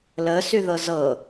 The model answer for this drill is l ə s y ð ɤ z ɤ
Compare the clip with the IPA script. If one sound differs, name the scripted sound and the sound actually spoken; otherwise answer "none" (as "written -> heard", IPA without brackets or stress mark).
none